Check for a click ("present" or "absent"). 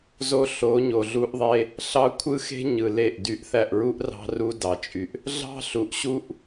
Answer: absent